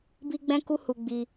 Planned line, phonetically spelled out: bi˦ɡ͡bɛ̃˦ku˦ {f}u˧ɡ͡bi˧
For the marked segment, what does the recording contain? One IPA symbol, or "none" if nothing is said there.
h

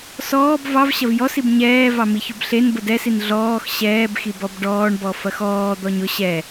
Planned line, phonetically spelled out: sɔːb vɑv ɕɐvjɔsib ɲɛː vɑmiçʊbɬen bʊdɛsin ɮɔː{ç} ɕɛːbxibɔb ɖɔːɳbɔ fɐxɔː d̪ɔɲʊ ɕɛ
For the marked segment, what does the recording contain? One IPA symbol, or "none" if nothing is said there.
x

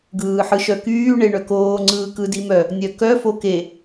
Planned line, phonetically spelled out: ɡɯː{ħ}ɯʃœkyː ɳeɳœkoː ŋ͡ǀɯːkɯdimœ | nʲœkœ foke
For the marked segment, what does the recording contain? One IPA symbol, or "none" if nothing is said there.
ħ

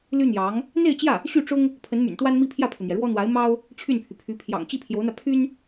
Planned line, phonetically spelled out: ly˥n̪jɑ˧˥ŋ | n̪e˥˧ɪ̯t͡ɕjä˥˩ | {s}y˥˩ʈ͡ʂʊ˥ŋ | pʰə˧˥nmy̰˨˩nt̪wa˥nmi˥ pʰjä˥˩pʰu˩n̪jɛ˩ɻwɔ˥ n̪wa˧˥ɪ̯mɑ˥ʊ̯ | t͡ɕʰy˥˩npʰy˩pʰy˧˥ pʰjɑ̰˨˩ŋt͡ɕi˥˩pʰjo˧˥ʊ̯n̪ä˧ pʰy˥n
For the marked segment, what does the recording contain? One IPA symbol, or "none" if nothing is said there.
ɕ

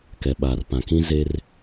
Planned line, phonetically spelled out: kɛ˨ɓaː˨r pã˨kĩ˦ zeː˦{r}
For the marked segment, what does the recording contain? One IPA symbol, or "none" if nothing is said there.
r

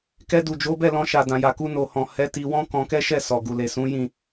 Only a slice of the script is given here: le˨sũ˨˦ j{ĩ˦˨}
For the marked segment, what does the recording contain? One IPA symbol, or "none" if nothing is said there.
ĩ˦˨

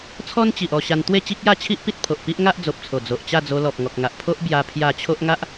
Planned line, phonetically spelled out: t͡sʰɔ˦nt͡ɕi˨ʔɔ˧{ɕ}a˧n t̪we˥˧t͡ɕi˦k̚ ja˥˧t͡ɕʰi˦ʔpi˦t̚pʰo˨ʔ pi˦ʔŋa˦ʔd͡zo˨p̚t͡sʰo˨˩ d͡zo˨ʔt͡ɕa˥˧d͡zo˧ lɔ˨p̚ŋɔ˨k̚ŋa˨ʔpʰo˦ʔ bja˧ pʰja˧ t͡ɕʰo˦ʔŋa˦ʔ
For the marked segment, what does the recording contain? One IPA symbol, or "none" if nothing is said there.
ɕ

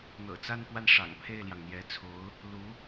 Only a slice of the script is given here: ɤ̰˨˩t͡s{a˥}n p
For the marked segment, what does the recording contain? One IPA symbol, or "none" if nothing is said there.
a˥˧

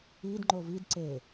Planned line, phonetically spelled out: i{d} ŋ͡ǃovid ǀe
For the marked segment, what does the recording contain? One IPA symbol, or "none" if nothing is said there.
d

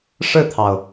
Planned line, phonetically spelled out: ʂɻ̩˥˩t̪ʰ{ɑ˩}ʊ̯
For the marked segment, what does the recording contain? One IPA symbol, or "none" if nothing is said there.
ɑ˩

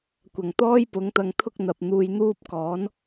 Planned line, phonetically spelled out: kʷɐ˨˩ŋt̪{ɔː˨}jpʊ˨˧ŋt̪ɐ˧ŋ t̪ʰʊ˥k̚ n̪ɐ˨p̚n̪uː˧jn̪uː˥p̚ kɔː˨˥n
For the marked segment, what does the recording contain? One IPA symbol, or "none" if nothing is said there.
ɔː˥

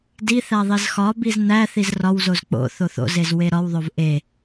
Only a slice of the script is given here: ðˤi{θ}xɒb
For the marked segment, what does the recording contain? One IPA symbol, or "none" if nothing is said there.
z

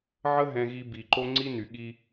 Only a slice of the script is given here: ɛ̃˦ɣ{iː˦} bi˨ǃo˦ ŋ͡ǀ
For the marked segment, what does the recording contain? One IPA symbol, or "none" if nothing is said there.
i˦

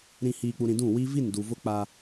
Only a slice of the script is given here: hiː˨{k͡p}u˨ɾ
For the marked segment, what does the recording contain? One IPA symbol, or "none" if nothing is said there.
k͡p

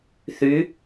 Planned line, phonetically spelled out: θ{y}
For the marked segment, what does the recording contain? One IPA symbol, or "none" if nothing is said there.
y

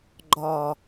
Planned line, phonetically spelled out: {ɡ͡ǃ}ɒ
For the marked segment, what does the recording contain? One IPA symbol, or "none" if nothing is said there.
ɡ͡ǃ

